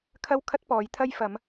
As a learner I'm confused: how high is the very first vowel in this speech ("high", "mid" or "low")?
low